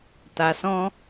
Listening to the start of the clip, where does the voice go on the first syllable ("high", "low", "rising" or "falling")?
low